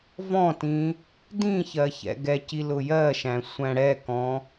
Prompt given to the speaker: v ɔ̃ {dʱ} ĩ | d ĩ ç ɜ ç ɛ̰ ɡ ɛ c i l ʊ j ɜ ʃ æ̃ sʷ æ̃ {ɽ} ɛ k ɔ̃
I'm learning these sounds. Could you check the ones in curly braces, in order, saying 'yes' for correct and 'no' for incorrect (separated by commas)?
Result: no, yes